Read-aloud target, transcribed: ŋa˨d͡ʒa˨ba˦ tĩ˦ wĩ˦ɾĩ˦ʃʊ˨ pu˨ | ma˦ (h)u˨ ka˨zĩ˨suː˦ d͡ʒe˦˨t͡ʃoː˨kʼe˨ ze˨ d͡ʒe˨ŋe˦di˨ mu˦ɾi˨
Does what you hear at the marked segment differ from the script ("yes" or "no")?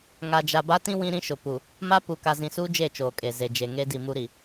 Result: yes